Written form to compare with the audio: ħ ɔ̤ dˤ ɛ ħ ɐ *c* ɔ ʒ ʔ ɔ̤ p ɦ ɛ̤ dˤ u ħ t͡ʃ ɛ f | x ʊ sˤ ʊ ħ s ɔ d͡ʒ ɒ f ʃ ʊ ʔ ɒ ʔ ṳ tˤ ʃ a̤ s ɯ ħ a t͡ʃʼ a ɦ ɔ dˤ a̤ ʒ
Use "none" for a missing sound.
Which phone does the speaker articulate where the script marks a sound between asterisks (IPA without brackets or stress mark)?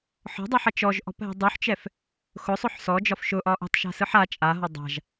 t͡ʃ